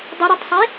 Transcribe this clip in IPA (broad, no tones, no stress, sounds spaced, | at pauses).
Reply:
dˤ ʊ ɾ ʊ tˤ sˤ i